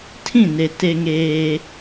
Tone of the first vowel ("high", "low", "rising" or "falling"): falling